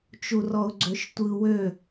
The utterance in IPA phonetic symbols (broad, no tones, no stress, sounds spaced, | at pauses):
t͡ʃ u r ɔ ʊ̯ ɡ͡ǀ ø ʃ tʷ ɯ w ø